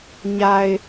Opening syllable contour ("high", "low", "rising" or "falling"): low